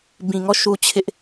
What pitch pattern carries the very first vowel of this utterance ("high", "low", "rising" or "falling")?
low